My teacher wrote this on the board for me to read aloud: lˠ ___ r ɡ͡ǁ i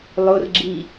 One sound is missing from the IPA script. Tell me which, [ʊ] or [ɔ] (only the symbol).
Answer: ʊ